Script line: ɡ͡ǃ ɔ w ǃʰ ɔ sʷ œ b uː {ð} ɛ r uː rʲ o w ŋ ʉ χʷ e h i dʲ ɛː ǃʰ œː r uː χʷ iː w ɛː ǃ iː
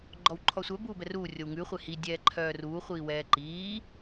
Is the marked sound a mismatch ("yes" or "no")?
yes